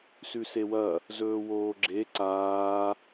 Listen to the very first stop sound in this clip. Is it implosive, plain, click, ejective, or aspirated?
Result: click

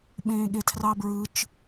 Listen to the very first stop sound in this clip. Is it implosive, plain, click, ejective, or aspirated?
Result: implosive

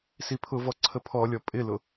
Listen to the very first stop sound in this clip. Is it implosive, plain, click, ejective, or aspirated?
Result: aspirated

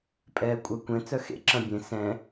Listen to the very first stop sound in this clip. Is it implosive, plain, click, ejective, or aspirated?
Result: ejective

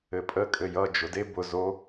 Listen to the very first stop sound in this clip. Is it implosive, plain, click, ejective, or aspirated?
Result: ejective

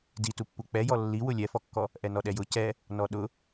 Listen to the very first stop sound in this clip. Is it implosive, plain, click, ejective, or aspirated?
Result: plain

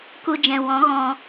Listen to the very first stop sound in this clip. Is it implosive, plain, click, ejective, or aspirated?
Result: plain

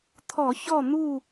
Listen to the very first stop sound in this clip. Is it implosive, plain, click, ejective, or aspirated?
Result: aspirated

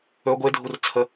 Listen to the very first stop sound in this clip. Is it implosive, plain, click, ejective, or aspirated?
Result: plain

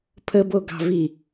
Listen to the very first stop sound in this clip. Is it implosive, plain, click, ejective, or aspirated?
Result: aspirated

